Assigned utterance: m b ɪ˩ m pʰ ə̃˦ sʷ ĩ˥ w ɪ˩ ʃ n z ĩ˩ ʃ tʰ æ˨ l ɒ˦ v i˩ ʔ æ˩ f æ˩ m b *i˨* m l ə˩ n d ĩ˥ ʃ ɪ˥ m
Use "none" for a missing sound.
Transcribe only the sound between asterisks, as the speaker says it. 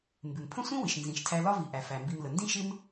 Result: i˨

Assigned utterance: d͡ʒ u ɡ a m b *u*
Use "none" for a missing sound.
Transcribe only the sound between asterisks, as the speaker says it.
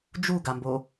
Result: o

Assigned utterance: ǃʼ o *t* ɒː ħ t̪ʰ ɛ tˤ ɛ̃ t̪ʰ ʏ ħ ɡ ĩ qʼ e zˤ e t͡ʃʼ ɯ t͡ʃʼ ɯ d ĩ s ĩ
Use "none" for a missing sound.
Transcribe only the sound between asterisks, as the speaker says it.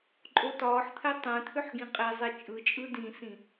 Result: t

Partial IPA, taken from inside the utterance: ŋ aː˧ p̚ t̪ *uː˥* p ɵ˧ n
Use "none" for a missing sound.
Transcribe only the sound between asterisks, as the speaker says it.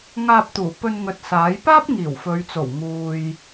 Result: uː˨˩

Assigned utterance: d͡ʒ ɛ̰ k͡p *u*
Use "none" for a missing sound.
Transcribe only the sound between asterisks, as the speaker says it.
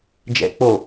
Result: o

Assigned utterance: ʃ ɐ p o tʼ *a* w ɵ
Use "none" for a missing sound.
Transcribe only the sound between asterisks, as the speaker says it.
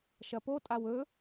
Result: a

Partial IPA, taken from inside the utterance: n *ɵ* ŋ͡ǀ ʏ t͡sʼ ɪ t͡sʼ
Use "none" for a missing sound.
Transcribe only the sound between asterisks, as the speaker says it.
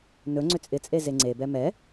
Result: ɵ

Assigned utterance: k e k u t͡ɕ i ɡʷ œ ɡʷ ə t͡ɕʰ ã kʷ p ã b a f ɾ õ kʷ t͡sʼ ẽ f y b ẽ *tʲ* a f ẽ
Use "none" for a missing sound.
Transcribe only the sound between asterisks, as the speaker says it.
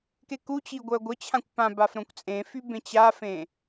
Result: t͡ɕ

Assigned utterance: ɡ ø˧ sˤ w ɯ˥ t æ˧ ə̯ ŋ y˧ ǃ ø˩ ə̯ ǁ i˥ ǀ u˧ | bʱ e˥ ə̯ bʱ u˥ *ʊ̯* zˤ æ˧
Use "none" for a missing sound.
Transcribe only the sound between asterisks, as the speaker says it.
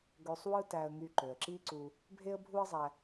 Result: ə̯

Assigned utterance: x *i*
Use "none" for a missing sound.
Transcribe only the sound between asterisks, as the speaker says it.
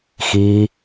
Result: i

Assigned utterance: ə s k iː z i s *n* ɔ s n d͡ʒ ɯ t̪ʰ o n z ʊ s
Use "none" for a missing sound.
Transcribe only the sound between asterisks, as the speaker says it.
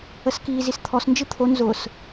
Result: t̪ʰ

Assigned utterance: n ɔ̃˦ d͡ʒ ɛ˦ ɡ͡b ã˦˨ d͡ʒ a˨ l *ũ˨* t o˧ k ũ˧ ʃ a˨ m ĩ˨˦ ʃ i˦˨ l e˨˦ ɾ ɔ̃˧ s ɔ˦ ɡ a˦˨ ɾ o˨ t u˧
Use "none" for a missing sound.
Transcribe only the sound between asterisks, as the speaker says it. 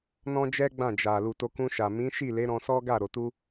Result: u˨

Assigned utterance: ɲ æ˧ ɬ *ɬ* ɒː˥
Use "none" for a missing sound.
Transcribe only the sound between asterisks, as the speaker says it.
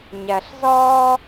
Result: z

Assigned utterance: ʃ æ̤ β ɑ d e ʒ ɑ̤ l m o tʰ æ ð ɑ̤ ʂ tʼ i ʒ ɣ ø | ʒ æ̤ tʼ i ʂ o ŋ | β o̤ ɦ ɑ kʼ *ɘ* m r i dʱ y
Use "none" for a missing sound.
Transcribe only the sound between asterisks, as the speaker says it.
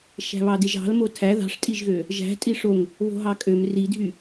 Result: ø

